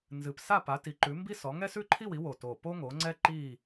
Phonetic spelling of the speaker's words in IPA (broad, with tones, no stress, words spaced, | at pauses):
nzɨ˨˩p sa˥˧pa˨˦ti˨˦ǃʉ˨˦ mbi˥sɔ˨˦ ŋɛ˥sʉ˥ǃʰi˥˧wi˨˦ wo˨˩to˨˩ po˥ŋo˨˦ŋ͡ǀɛ˥ ǃi˥˧